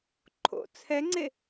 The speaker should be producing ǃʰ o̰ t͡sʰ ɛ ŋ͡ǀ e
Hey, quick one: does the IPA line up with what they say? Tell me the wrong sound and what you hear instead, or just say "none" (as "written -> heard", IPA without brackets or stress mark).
none